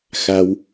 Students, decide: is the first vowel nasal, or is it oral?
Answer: oral